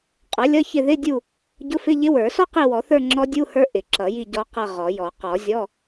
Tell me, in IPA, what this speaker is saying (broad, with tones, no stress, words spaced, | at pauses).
qʼʌ˩˥lʲʌ˧˥˧çɪ˦˨ ðɪ˧˥˧ dʲu˦˨ | ɟʊ˧˥˧fɪ˧˥˧ʎɪ˧˥ wə˞˨˩˦sɔ˥qi˦˨ wɔ˨˩˦θə˞˦˨ ŋ͡ǁɔ˧˥dʲu˧˥˧hə˞˧˥ ʔɪ˨˩˦ǁʌ˨˩˦ji˦˨ ɟɔ˧˥qʌ˦˨ ʁɔ˨˩˦jɔ˨˩˦ qɔ˨˩˦zʲɔ˧˥˧